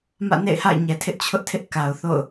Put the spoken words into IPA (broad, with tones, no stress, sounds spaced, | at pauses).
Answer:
m ä̰˦˨ n ḛ˦˨ ɪ̯ h a̰˦˨ ɪ̯ ɲ ɛ˨ tʰ ɪ˦ ʔ t͡ɕʰ ʊ˦ ʔ tʰ ɪ˦ ʔ k a˨ ʊ̯ θ o̰˦˨ ʊ̯